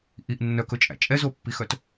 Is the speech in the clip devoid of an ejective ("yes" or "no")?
no